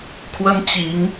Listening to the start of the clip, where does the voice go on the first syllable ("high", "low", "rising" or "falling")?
high